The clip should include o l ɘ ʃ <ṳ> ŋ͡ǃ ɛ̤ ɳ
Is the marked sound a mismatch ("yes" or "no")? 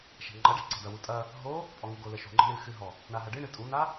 no